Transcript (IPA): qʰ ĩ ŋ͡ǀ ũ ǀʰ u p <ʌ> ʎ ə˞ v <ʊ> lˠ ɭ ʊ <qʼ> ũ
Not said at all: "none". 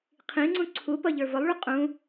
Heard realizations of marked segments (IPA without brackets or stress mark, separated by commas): ʌ, ʊ, qʼ